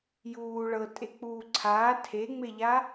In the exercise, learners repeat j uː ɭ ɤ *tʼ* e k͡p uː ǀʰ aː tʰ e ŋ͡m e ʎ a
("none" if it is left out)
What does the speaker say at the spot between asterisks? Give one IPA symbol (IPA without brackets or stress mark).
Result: tʼ